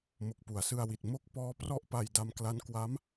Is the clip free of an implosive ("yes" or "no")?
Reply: yes